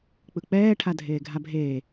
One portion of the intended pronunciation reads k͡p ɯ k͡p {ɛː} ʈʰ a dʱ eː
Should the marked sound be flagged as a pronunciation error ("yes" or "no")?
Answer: no